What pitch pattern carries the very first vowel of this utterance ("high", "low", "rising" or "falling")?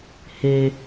low